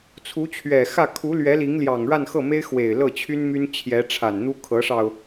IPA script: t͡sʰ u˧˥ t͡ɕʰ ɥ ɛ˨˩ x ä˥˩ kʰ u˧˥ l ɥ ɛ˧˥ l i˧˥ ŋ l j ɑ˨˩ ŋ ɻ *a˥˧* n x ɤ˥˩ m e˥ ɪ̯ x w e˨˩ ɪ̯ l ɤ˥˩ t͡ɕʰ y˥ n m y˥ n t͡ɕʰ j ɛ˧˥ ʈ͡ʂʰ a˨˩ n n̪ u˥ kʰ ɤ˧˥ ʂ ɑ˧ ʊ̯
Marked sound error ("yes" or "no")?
no